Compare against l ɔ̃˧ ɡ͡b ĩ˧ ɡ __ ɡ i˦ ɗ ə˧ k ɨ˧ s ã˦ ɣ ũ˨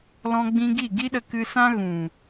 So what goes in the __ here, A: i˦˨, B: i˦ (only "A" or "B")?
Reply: A